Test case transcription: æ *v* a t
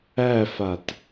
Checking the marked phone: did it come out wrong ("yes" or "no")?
yes